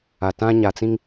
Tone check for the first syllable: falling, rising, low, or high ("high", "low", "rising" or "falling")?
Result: low